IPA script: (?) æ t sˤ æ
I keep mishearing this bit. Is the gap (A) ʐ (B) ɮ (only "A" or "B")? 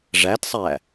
A